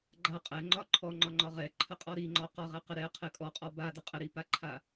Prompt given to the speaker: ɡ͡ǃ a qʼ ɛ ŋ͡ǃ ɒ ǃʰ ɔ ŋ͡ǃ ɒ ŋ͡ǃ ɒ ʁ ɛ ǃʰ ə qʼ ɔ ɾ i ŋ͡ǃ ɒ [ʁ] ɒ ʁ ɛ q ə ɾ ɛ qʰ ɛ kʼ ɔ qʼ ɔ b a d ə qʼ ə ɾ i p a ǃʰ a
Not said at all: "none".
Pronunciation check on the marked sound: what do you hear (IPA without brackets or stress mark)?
q